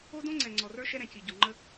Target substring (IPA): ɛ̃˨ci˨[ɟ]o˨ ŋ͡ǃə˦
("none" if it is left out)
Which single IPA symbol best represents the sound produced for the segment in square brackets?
ɟ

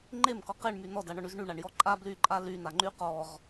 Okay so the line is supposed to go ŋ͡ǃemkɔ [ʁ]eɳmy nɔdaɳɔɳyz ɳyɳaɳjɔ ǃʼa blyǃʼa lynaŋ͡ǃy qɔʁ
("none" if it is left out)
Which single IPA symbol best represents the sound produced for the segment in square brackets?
q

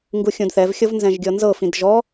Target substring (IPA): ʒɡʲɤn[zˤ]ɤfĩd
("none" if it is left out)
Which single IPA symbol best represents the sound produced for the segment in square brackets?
z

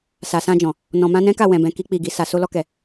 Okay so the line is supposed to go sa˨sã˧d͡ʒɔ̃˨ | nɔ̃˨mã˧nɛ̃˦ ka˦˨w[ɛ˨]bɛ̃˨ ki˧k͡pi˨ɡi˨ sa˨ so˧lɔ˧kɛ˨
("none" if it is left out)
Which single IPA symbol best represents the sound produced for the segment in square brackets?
ɛ̃˨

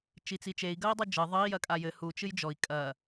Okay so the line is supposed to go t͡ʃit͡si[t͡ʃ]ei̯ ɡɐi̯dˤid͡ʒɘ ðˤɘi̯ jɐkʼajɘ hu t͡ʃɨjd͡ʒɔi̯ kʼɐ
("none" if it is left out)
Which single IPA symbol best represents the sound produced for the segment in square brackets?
t͡ʃ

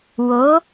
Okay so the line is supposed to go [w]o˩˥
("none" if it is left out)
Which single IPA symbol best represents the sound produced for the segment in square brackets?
w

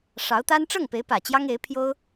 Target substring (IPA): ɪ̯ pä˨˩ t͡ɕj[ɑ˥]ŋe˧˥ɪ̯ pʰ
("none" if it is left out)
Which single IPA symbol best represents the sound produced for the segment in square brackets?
ɑ˥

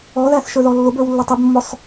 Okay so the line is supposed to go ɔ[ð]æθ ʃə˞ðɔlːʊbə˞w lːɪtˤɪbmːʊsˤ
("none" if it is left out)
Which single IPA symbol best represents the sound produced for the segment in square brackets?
ð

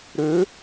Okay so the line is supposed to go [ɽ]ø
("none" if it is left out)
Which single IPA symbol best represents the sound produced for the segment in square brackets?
ɾ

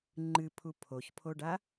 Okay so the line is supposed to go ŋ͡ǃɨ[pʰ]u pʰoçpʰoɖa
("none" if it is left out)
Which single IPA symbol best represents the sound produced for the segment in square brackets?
pʰ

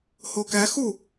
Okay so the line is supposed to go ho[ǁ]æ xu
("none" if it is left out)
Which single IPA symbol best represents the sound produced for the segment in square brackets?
k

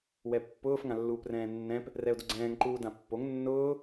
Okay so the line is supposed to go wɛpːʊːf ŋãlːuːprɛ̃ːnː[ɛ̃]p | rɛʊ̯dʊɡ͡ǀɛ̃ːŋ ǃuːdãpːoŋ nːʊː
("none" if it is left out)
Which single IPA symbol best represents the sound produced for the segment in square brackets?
ɛ̃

